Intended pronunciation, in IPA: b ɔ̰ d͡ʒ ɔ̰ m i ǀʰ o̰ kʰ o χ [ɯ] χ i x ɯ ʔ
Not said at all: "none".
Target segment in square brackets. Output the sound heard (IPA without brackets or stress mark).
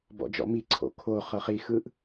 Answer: ɤ